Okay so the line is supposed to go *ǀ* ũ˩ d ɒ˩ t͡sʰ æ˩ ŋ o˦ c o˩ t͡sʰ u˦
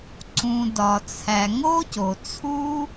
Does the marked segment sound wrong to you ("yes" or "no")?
no